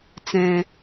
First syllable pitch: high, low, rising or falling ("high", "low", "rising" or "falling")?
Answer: low